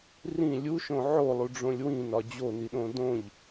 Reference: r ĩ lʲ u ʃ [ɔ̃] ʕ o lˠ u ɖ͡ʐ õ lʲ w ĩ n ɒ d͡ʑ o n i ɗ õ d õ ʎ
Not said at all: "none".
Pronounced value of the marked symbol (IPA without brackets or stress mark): õ